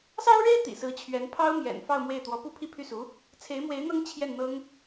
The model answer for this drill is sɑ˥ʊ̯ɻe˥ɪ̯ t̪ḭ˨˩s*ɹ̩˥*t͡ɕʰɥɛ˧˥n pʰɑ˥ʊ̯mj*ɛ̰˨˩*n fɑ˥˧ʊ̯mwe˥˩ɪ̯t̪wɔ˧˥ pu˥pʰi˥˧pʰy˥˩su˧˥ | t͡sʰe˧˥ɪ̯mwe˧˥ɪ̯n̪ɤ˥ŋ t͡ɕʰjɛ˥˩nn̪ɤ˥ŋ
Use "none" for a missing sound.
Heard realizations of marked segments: ɹ̩˧˥, ɛ̰˨˩

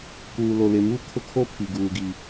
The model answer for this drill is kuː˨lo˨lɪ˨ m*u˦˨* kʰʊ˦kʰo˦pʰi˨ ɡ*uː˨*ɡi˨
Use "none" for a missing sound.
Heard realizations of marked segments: u˦, uː˨

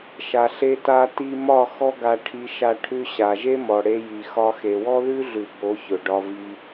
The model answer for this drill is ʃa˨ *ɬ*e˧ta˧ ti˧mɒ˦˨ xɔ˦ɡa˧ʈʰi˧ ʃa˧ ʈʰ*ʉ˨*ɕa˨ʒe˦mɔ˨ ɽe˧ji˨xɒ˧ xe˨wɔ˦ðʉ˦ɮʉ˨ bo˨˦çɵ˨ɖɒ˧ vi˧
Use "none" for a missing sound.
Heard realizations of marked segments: ɬ, ʉ˧

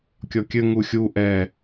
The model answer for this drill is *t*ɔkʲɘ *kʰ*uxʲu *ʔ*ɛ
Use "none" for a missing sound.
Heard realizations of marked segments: kʲ, ŋ, ʔ

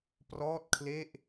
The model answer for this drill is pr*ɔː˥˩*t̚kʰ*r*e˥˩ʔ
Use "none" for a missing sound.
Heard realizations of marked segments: ɔː˥˩, l

